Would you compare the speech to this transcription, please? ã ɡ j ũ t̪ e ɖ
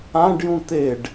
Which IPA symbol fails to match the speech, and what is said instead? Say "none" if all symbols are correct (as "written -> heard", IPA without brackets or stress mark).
ɡ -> ɖ